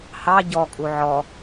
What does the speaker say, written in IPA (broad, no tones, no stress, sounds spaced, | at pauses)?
h ɑ ɟ ɔ kʼ u ʕ ɔ